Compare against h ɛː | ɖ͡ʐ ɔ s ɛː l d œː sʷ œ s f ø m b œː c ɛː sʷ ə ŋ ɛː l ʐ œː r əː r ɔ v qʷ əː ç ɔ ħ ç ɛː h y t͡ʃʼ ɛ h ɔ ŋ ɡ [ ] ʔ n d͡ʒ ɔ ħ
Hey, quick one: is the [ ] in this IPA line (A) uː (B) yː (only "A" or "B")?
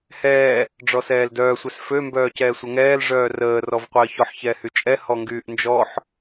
B